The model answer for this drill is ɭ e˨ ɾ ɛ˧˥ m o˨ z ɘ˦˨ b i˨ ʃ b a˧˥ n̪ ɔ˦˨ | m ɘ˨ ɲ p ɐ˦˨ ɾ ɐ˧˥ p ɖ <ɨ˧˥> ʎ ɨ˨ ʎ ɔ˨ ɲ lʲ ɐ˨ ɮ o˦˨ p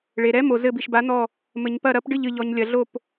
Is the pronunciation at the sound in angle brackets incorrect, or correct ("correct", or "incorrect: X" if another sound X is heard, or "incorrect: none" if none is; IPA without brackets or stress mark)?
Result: incorrect: ɨ˦˨